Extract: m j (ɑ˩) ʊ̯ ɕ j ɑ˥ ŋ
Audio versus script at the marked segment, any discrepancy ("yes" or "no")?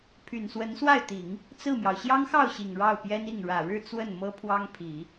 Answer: no